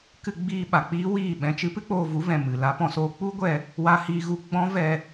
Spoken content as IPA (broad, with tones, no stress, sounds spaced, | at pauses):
k ɨ˧ ɡ͡b iː˧ ɓ a˨ k͡p iː˦ w iː˦˨ ɓ ɛ̃˧ t͡ʃ ɨ˦ p ɨ˦ k͡p oː˧ v u˨˦ v ɛ̃˨ m ɨ˨ l a˧ p ɔ̃˧ s oː˧ k͡p u˦ ɡʷ ɛ˧ | w a˧ h iː˧ ɣ u˧ ɡ͡b ɔ̃˦ v ɛ˧